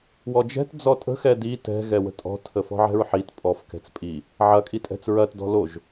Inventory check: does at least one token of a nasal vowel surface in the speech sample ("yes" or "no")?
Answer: no